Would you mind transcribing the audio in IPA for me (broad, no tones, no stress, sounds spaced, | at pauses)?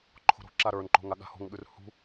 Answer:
ǃʰ o̤ ɾ o̤ ǁ a ɾ ə˞ n ǃ o̤ ŋ a ɠ a̤ h o̤ ŋ ɠ ʉ r h ṳ